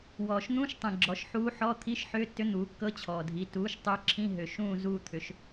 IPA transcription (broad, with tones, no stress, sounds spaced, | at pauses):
w ɔː˩ ʃ n̪ ũ˧˥˧ ʃ tˤ ĩ˩ ɡ͡ǁ ɔ˩˥ ʃ ħ uː˧˥ ħ ɔ˧˥˧ t̪ʰ i˧˥˧ ʃ ħ ʏː˧˥˧ tː ʏ˧˥ n̪ uː˩˥ kː ɤ˧˥˧ t͡ɕʰ ɔː˩ dʱ i˩˥ t uː˩˥ ʃ tˤ ʏː˧˥ ǁʰ ĩ˧˥˧ ɦ ʏ˩ ʃ ũː˦˨ z uː˦˨ t̪ʰ ʏ˩˥ ʃ